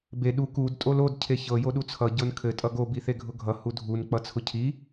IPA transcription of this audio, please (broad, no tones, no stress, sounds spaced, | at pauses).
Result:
b e ɗ u k u d tʼ o l o d cʰ e ç ɤ j o ɗ u t͡sʰ ʌ ɟ ɤ n kʰ ɘ tʼ ʌ ɡ o b i θ e ɡʱ ʊ ɡʱ ʌ h u dʱ u n k͡p ʌ t͡sʰ ʊ cʰ i